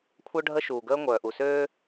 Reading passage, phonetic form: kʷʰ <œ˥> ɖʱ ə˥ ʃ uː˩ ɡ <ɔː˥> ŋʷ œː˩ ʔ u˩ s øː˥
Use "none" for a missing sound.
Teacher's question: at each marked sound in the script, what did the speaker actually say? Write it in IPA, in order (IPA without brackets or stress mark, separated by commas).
œ˥, əː˥